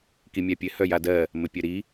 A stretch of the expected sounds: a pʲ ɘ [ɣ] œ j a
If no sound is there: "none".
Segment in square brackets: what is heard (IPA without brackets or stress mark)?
h